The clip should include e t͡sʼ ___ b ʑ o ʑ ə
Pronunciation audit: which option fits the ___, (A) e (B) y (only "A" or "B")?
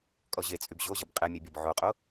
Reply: B